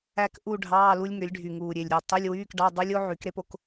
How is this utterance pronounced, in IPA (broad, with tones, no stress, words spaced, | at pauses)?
æ˥˧kʔu˥˧ ɖʱɑː˧˥˧lu˦˥lʲŋø˩˥lʲ ɖʱy˧˩ŋuː˧˩ ɾʲe˧˩lʲɾʲɑ˧ tˤø˧˥˧lʲwyː˧˥˧kɖɑ˧˥˧ dˤɯ˦˥lʲ o˦˥ʕy˩˥k ɾe˦˥po˦˥k